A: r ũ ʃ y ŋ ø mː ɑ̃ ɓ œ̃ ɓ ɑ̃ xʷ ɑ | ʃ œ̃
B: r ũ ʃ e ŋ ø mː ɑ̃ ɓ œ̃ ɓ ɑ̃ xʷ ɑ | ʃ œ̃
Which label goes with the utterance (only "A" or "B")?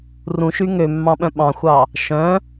A